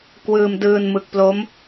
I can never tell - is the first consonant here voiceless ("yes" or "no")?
yes